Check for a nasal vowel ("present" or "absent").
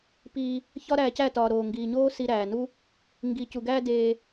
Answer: absent